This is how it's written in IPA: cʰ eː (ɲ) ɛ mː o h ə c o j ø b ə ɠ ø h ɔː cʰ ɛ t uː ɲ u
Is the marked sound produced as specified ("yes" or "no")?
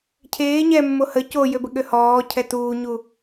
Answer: yes